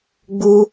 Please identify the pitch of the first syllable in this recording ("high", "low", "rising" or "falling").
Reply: high